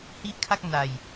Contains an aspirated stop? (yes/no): yes